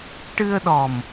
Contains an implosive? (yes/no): yes